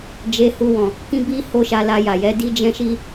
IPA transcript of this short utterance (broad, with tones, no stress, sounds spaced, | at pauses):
d͡ʒ e˧ h u˧ w ɔ̃˨ | k ĩ˦ b i˦ h o˦ ʃ a˧ l a˧ j a˨ j ɛ˨˦ d i˦ d͡ʒ ɛ̃˦ ʃ i˦